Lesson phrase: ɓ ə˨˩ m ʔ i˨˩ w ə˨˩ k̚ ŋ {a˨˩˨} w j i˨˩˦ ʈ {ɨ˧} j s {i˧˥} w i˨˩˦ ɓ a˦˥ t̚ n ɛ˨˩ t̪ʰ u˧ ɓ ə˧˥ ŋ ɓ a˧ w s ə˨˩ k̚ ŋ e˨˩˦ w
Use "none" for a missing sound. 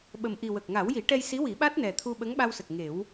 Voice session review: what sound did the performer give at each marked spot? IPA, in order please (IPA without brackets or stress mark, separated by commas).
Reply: a˨˩˦, ɛ˧, i˧˥